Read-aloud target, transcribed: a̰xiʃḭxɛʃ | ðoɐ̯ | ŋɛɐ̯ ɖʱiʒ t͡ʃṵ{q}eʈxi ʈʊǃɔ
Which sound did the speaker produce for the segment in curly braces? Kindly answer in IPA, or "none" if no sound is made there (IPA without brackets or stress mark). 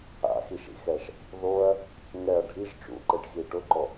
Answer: ǃ